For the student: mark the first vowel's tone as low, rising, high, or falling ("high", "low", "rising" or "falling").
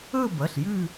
falling